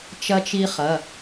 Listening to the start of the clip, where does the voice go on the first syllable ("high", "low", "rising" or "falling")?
high